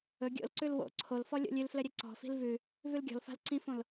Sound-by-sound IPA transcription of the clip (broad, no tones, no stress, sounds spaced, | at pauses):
ɵ ɡʲ o̰ l ǀ ʉ l w o̰ ǀʰ o l f ɔ lʲ o̰ lʲ ʉ l f l ɘ ɾʲ ɘ ǀ ɔ̤ f i̤ l v ʉ | v ʉ l ɡʲ ɔ̤ l f a̤ l ǀ ĩ f õ l